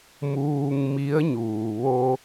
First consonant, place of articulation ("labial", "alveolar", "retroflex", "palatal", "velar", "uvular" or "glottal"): labial